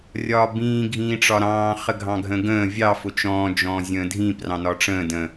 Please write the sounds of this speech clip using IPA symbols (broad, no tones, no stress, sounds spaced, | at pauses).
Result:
rʲ ɒː b ĩː ɡʱ ĩː ʈ͡ʂ ɒ ɾ ɑ̃ː χ ə ɡʱ ɑ̃ ɡʱ ə̃ ɡ ə̃ː vʲ ɑ f ʊ t͡ʃ ɔ̃ː d͡ʒ ɔ̃ː zʲ ə̃ː dʱ ĩ p r ɑ̃ n ɒ ʈ͡ʂ ə̃ː d ə̃